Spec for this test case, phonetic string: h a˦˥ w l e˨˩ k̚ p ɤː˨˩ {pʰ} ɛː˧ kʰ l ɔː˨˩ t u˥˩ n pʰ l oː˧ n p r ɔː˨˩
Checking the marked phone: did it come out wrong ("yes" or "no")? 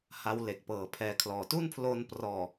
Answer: no